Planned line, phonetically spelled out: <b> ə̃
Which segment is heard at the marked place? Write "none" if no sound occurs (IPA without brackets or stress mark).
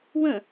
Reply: w